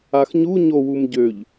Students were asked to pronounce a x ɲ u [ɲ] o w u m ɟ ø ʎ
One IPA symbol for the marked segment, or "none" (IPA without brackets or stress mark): ɲ